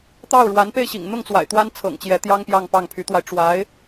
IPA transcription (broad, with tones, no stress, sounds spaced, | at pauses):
t̪ ɑ˥˩ ʊ̯ ɻ w a˧˥ n p e˥˩ ɪ̯ ɕ ḭ˨˩ ŋ n̪ ʊ˥˩ ŋ t͡s w a̰˨˩ ɪ̯ t̪ w a˥ n t͡sʰ ɤ̰˨˩ ŋ t͡ɕ j ɛ˧˥ t̪ j ɑ˥ ŋ p j ɑ˥˧ ŋ p ɑ˥˩ ŋ pʰ y˧˥ t̪ w a˧ ɪ̯ ʈ͡ʂ w a˧˥ ɪ̯